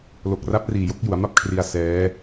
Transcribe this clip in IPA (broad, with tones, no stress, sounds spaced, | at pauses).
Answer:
l o˨˩ k̚ r a˦˥ p̚ r iː˨˩ j o˦˥ k̚ j u˩˦ a̯ m a˥˩ p̚ kʰ r i˧ a̯ s ɛː˦˥